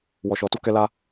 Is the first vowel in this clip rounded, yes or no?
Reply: yes